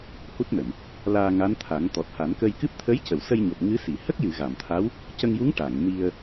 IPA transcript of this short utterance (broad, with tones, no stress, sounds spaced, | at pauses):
h u˦˥ t̚ n ə˨˩˨ m | l aː˧ ŋ a˧˥ n t̪ʰ a˨˩˦ ŋ t̪ ɔ˨˩ t̚ h a˨˩˦ n k ə˧ j k ɨ˦˥ p̚ t̪ʰ ə˧˥ j c ə˨˩˨ w s ə˧ j ɲ o˨˩ p̚ ŋ ɨ˧˥ s i˨˩˨ h ə˦˥ k̚ j ɨ˨˩˨ ɣ a˨˩˨ m t̪ʰ a˧˥ w | c ə˧ ŋ j u˧˥ ŋ ʈ a˨˩˨ ŋ n i˧ ə̯